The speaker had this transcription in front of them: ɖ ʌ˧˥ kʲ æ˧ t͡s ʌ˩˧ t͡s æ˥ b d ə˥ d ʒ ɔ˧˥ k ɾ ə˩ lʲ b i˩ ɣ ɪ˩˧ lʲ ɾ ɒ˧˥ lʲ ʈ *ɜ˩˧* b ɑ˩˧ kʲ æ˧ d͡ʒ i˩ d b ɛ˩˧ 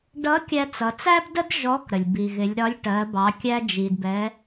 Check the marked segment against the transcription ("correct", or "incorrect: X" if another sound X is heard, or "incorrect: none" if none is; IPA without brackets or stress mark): correct